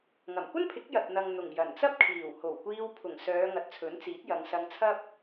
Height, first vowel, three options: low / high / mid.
low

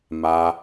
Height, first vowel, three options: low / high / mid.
low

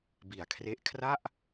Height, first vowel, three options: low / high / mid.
high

